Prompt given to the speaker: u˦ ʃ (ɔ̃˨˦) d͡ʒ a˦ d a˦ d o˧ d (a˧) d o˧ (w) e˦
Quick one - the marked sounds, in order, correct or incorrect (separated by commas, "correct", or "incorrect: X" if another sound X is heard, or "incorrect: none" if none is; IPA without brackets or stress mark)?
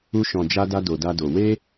incorrect: ɔ̃˧, incorrect: a˦, correct